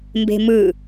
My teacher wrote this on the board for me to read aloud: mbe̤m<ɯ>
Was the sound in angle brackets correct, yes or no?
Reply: yes